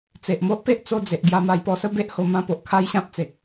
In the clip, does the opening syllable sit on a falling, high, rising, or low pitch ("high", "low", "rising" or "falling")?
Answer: low